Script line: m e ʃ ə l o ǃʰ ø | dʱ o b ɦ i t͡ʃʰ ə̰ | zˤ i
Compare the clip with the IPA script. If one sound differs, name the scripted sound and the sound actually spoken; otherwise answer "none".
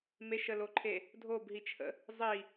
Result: ø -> e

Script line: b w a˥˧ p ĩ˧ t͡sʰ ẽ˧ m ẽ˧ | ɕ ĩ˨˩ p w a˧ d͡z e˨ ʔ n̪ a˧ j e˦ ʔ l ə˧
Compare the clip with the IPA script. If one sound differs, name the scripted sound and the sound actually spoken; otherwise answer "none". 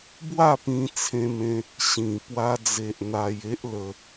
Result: none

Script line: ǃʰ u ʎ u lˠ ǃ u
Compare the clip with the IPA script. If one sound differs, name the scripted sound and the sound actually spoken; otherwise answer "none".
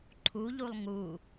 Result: ǃ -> ŋ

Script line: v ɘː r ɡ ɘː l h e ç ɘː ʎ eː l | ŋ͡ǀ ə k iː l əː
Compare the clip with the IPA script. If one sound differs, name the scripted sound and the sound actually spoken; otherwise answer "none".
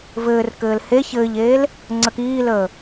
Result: ɡ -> k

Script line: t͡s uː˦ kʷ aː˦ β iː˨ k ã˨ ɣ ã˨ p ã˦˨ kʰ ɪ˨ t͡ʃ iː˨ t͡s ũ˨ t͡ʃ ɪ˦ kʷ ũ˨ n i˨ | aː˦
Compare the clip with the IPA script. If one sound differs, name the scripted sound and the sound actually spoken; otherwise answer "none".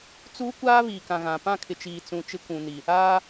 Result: none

